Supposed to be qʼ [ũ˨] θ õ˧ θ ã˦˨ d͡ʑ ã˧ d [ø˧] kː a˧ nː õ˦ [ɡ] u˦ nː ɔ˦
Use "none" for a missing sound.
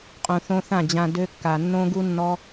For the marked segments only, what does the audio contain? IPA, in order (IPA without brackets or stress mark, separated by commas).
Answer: ũ˨, ø˦, ɡ